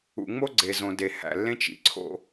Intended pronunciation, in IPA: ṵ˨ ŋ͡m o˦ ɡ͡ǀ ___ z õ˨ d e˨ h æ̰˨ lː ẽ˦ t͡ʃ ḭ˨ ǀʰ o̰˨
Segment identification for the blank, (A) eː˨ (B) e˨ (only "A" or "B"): B